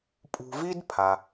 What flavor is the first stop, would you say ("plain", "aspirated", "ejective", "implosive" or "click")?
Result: ejective